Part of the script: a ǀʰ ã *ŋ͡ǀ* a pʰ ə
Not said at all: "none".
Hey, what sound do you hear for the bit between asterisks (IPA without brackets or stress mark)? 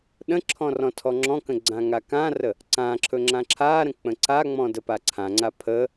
ŋ͡ǀ